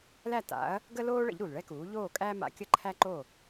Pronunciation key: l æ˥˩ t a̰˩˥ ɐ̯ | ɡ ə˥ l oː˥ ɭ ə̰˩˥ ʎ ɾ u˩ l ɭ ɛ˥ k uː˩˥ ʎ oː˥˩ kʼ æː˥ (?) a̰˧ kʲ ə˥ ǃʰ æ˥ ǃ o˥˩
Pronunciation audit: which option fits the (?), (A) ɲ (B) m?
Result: B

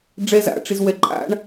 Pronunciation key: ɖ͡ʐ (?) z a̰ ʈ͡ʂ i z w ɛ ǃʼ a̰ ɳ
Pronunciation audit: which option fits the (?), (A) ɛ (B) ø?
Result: A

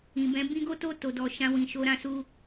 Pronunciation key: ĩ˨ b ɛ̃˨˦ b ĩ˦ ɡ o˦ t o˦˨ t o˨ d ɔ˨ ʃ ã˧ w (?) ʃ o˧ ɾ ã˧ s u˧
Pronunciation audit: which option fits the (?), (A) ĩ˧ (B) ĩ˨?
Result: B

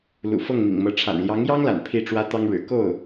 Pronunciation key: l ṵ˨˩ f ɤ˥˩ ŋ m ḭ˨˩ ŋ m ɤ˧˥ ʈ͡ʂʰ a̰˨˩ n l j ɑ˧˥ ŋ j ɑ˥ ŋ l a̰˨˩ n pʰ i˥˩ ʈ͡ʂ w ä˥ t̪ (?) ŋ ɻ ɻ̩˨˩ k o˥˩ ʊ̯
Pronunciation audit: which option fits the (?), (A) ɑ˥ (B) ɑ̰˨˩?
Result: A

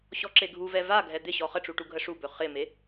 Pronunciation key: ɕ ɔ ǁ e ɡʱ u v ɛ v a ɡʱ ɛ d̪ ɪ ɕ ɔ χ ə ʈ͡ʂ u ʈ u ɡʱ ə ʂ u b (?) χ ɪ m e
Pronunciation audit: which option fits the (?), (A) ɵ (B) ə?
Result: A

